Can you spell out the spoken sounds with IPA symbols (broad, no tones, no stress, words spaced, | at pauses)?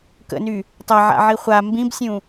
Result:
kə̰ny | tˤaʕa̰ʕi χʷa mbĩbsʲũ